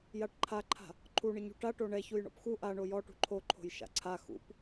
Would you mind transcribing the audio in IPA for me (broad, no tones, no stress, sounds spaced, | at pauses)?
j a ʈ ǃʰ a ǃʰ a̤ | ǃʰ u ɳ ɯ ɲ ṳ ʈ a ʈ o ɳ ɛ ç u j ɳ ɔ̰ p x u ʔ a ɳ o j ɔ ʈ ṳ ǃʰ o ǃʰ o̤ j ʃ a̰ ǀʰ a x ṵ p